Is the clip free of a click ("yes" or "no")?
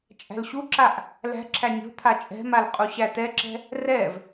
no